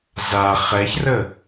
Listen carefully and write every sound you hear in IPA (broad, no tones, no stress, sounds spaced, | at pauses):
z a χ ɛ ç r ə